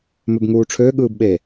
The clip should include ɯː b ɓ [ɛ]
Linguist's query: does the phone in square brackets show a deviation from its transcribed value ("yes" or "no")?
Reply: yes